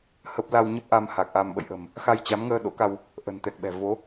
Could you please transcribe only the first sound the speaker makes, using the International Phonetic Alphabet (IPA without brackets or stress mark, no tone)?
h